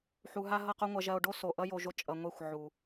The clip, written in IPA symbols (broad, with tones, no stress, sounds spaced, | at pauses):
ħ u˨ ɦ a˧ ɦ ʌ˦˨ q o˦ ŋʷ ɐ˧ ʒ ɐ˧ o̯ ɖ o˦ s o˨ ʔ ʌ˦ j o˧ ʒ o˧ t͡ʃʼ ʌ˨ ŋʷ e˦˨ xʷ ʕ u˨